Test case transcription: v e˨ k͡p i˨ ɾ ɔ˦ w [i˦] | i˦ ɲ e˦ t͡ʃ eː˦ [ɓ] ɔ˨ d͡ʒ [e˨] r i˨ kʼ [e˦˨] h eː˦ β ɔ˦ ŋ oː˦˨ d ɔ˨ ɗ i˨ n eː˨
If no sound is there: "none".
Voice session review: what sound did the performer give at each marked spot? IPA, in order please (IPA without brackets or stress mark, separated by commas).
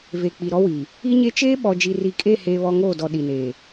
i˨, ɓ, i˨, e˦˨